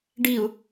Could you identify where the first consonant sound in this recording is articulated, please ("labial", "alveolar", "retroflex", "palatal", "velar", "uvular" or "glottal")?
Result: retroflex